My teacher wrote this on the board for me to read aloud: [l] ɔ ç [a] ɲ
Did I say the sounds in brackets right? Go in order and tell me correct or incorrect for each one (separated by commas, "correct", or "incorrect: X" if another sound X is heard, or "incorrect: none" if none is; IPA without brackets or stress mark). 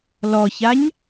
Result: correct, correct